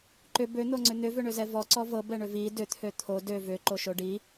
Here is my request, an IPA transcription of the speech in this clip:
ǃ ʏ b ø n̪ o ŋ͡ǀ ʏ n̪ ʏ v ʏ ɳ ʏ z ɛ v ɔ ǀ ɔ v ɤ b ɛ ɳ ʏ v i d ʏ t̪ʰ ø t̪ʰ o d ø v ʏ ǃ o ʃ o ɖ i

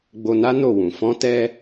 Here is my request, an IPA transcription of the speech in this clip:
ɡ͡b o˧ n a˦ n o˦˨ w ũ˨ f ɔ̃˧ t ɛ˧

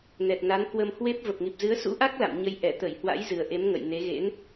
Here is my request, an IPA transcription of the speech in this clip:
n ɛ˨˩ t̚ n a˨˦ n k w ə˧ m h w e˦˥ p̚ v ə˨˩ p̚ ŋ i˨˩ p̚ z ɨ˨˦ ə̯ s ṵ˧˥ ʔ a˦˥ k̚ l a̰˧˨ m ɲ ə˨˦ j ʔ ɛ˧˩ t̪ ə˧˩ j h w a̰˧˥ j z ɨ˨˩ ə̯ ʔ e˨˦ m ŋ ə̰˧˨ j n e˨˦ ɣ ḛ˧˥ n

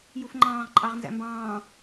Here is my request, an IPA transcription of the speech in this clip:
j u f ŋ͡ǃ ɑ̃ː ʁ ǃʼ ɑ ʁ n z æ̰ m b ɑ̃ː

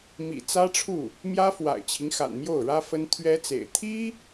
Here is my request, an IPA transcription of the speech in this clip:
m ḭ˨˩ t͡s ä˥ ʈ͡ʂʰ u˥˩ | m j ä˥ f w a̰˨˩ ɪ̯ t͡ɕʰ i˦ ŋ x a̰˨˩ n m j o˥˩ ʊ̯ ɻ ä˥ f ə˥ n t̪ʰ ɥ ɛ˥ t͡s ḛ˨˩ ɪ̯ t̪ʰ i˥

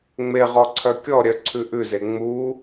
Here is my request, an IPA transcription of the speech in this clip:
ŋ͡m e ʁ ɔ ǀʰ œ kʲ ɔ ɾʲ œ ǀʰ ʉ ʔ ʉ z e ŋ͡m u

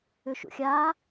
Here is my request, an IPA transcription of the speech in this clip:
ʏ ʃ ṵ xʲ aː

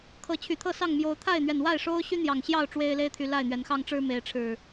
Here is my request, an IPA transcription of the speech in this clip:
kʰ ɤ˨˦ t͡ɕʰ y˨˩ t̪ʰ ɤ˥˨ s ɑ˥˨ ŋ m j o˨˦ ʊ̯ t̪ʰ a˥˨ ɪ̯ n̪ ɥ ɛ˨˩ n w a˥˨ ɪ̯ ʂ o˦ ʊ̯ ɕ y˦ n̪ j ɑ˨˩ ŋ ɕ j ɑ˥˨ ʊ̯ ʈ͡ʂ w e˦ ɪ̯ l e˦ ɪ̯ t̪ʰ y˨ l a˥˨ ɪ̯ n̪ ɥ ɛ˨˦ n x ɑ˦ ŋ ʈ͡ʂ ɻ̩˦ m e˨˦ ɪ̯ ʈ͡ʂʰ ɻ̩˨˩

